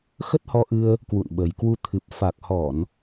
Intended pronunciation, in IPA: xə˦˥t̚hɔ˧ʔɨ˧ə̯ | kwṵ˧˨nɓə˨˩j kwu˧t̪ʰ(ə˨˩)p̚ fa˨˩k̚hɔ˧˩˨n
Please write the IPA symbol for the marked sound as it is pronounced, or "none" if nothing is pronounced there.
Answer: ɨ˨˩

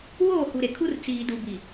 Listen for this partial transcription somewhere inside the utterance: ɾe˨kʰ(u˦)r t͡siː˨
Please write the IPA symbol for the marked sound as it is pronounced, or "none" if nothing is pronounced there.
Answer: u˦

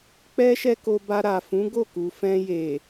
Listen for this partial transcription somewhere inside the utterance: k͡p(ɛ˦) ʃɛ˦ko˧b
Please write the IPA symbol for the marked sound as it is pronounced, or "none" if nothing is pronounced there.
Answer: ɛ˦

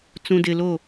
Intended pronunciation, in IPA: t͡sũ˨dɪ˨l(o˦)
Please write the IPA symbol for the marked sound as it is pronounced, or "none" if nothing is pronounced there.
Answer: o˦˨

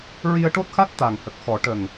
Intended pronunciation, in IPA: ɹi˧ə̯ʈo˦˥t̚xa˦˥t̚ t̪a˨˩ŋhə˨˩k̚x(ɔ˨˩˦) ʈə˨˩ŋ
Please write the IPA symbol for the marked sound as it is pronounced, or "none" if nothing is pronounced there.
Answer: ɔ˨˩˦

